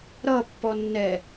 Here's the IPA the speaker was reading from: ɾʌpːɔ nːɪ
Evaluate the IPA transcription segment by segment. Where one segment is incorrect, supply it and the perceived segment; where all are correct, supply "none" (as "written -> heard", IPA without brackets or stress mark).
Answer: ɪ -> ɛ